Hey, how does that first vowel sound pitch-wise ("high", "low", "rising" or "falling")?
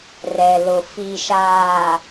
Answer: low